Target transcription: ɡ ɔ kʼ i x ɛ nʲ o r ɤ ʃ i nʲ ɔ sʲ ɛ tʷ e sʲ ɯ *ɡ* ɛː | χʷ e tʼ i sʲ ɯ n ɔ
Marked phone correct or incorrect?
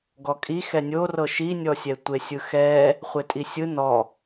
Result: incorrect